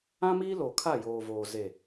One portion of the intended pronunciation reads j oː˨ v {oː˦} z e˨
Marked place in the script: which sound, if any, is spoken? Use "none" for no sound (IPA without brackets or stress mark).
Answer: oː˨